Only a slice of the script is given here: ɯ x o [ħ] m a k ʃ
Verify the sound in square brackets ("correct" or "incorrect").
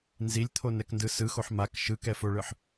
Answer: correct